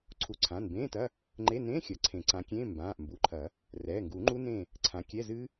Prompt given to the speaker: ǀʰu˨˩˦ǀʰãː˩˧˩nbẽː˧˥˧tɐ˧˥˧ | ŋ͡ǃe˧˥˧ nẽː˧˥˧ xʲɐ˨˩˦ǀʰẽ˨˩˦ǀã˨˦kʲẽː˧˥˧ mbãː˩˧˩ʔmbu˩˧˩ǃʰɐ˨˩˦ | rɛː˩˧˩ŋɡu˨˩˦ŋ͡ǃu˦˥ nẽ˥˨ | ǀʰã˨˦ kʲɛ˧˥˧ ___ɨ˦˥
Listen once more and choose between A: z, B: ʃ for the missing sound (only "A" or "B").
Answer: A